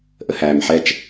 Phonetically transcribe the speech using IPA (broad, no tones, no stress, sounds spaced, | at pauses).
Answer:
ʔ ə h æː m ħ ɛ t͡ʃ